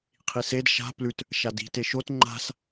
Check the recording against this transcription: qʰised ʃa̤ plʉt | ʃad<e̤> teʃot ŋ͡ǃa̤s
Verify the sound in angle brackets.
incorrect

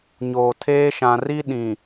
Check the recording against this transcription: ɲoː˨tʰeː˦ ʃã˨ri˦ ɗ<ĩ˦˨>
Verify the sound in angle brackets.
incorrect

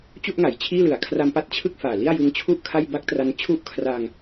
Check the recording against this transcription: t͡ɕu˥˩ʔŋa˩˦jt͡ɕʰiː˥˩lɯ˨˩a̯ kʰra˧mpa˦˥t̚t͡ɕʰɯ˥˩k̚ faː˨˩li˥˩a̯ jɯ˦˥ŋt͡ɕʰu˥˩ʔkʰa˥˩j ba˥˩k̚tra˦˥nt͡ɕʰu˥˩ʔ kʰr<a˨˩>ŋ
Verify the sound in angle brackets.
incorrect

